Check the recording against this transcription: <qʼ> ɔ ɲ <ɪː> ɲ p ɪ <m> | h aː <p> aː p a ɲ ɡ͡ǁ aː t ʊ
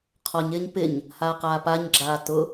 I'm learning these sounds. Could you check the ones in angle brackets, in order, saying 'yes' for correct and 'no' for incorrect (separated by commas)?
no, yes, no, no